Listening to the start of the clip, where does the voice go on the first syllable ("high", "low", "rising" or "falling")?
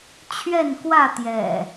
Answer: falling